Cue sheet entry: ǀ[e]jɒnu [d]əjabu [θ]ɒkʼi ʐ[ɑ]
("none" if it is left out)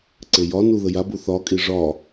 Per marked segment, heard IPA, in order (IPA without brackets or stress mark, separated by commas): e, ð, θ, ɒ